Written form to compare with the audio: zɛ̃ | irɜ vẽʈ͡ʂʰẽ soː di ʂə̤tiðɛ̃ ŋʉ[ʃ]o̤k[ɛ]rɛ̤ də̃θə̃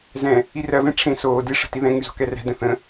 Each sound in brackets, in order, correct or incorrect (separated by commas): incorrect, correct